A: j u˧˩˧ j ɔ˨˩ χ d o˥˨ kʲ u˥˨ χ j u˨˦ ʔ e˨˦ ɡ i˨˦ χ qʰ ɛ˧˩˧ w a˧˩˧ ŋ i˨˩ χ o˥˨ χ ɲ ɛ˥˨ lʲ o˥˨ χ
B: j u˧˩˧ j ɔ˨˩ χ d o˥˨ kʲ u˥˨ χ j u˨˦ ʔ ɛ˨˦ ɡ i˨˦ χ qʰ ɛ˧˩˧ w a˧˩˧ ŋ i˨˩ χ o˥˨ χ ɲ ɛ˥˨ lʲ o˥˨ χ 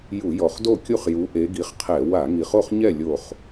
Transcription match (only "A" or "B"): A